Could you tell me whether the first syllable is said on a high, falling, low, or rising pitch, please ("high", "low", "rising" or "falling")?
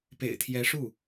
low